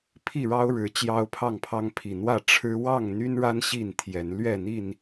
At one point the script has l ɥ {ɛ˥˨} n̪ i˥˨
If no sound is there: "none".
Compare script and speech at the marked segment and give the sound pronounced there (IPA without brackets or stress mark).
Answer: ɛ˥˨